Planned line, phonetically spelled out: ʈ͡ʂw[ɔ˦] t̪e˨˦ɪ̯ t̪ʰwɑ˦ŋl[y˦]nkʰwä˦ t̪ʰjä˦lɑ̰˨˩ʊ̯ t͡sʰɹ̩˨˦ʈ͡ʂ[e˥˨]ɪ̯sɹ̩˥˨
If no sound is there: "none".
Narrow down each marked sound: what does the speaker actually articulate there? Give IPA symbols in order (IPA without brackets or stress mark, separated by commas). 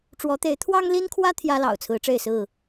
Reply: ɔ˨˦, i˦, e˥˨